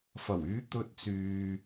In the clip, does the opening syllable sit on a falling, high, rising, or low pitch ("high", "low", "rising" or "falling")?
low